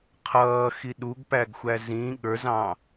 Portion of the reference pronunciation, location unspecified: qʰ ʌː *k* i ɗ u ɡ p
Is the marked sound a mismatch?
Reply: yes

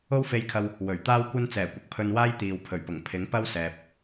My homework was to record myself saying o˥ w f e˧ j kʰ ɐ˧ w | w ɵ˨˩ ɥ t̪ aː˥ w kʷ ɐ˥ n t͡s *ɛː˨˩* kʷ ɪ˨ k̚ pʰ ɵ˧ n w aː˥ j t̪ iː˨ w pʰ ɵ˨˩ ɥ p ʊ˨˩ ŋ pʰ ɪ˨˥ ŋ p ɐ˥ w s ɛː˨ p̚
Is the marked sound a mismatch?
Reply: no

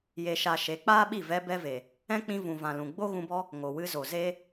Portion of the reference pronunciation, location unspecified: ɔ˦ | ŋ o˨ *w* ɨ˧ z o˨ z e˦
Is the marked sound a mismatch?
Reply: no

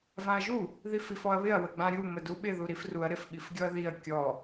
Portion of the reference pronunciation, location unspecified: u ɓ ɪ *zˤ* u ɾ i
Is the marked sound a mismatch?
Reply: yes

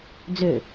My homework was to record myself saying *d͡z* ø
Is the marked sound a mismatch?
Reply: no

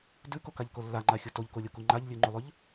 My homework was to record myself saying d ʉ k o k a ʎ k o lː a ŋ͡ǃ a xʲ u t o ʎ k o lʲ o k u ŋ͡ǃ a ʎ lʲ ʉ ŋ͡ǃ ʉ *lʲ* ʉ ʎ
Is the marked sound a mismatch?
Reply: yes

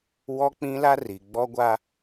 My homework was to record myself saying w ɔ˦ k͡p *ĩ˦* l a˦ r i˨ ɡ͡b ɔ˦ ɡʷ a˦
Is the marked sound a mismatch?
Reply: no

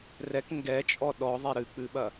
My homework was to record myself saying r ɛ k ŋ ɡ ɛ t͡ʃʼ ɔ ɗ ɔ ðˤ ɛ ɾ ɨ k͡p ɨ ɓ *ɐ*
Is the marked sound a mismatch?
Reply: no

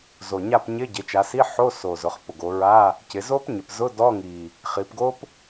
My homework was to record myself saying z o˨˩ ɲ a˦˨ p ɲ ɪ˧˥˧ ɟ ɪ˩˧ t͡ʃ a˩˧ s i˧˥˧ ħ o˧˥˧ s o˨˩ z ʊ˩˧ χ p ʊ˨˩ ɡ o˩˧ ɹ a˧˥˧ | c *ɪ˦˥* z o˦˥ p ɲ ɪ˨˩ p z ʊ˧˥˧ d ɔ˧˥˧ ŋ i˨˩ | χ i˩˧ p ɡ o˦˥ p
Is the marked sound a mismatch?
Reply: yes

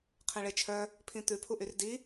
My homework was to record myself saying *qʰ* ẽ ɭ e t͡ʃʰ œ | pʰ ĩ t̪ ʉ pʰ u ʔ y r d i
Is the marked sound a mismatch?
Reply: no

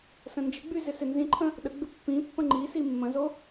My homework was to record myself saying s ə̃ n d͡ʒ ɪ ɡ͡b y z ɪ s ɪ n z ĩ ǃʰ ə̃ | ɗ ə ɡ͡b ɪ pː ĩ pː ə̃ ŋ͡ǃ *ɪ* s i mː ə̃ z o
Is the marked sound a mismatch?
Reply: yes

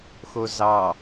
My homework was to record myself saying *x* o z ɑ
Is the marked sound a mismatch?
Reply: no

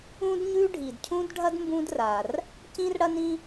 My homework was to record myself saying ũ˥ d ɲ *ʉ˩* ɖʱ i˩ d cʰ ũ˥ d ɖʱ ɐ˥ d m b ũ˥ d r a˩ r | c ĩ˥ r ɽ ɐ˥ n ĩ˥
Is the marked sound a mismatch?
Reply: yes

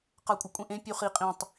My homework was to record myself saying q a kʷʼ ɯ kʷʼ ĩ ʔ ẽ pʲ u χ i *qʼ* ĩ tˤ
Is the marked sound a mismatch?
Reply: no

